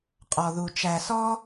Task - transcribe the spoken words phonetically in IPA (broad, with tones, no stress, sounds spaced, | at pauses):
qʼ ɔ˧ ð u˧ t͡ʃ æ˧ s ɔ˦